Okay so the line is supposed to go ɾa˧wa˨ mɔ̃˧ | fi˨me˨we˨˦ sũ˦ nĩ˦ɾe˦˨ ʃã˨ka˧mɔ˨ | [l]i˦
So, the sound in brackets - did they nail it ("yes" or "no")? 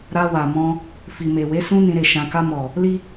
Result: yes